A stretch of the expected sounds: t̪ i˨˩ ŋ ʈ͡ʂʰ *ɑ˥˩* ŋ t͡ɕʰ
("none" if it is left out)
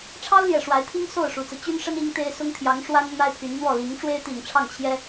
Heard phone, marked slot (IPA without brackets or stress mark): ɑ˥˩